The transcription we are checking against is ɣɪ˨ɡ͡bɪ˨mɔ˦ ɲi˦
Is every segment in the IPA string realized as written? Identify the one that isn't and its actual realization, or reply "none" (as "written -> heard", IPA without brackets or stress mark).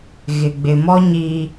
none